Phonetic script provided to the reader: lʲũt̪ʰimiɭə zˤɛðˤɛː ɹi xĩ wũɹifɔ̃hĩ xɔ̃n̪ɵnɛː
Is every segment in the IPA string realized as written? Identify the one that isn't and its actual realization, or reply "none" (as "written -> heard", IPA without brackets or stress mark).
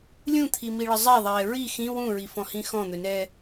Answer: none